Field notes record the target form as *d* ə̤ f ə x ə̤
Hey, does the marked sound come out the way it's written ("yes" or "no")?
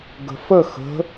no